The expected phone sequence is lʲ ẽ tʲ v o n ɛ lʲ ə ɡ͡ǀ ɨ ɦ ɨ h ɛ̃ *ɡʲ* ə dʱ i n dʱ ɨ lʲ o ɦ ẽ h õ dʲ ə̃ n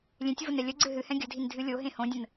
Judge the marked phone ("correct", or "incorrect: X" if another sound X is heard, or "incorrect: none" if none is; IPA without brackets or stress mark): correct